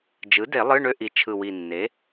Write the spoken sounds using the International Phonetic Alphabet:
d͡ʒ ɯ˩˥ d e˨˩˦ lˠ ɯ˧˥˧ ɳ ø˦˨ ʔ i˨˩˦ t͡ʃʰ ɯ˨˩ w i˨˩ nː e˩˥

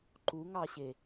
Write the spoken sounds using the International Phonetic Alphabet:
ǃ u ŋ ɑ ɕ e

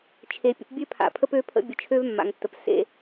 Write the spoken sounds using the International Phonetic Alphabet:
t͡ʃʰ e˨ pʲ ə̰˨ p bʲ ø˦ pʰ a̰˨ pʰ ə˦ p ø˦ pʰ ə̰˦ bʲ ə˨ t͡ʃʰ ø˦ v mː a̰˨ ŋ tː ə˨ p s ḛ˦

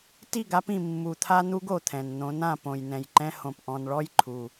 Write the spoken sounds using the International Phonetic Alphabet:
t i˦˨ ɡ a˦ p ĩ˨ mː u˨ t̪ʰ a˦ n̪ u˦ ɡ o˨ t̪ʰ ɛ̃˨ n n̪ õ˨˦ n ã˨ p õ˨ j n ɛ̃˨ j ǃ ɛ̃˦ h õ˨ p ʔ ɔ̃˨ n ɭ ɔ˦ j ǃʰ u˦

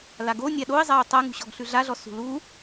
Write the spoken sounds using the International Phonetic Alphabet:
l a ɡ o nʲ a ɗ o ɪ̯ zˤ a ʊ̯ tˤ a ŋ ṳ ɕ ɔ ɡ ɬ ʉ ɮ a ɮ ɔ s ṳ l u

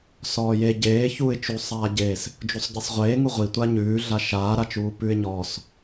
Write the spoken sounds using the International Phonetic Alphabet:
s ɔː j e ɟ eː ç uː ɪ̯ t͡ʃ u sˤ aː ɟ eː s | d͡ʒ u sˤ ɟ e sˤ ʁʷ eː ŋ u ʁʷ i tʷ a ɲ ʉː ɮ a ʃ aː ɾ a t͡ʃ uː p ʉ ɪ̯ ɲ ɔː s

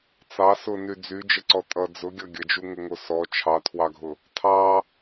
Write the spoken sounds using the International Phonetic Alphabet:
t͡s ɑ s ʊ n y d͡z y d͡ʒ ə ǀ ɔ tʼ ʌ d͡z ʊ ɡʲ ʌ ɡʲ ə d͡ʒ u ŋ ə ŋ o s ɔ t͡ʃʰ ɑ tʰ w ɑ ɡʱ ʊ | tʰ ɑ

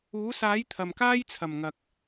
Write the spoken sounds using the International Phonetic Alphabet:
uː˨˥ s aː˨˥ j t̪ʰ ɐ˨ m k aː˥ j t͡sʰ ɐ˨˩ m ŋ ɐ˨ k̚

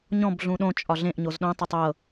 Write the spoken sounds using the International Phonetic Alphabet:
ɲ ɔ̃ b ɮ ũ ɗ õ t͡ʃʼ ɒ ɮ ẽ ʔ ɲ o z ɗ õ tˤ ɤ tˤ ɤ

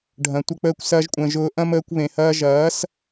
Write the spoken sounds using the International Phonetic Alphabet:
ɖʱ ɐ̃˨ tʷ ə˦ k͡p əː˦ kʷ s ɐː˧ ʒ kʷʼ ə̃ː˨ ʒ ʊː˧ ʔ ɐ̃˦ m əː˧ kʷ β ẽ˨ h ɐː˧ ʒ ɐː˨˦ s

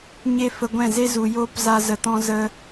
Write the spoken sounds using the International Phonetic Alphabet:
ɲ e˦ f ə˧ ɡʷ ɛ̃˦˨ z e˦ z u˨ j oː˦ p z a˧ z ə˨ t ɔ̃˧ z ə˧

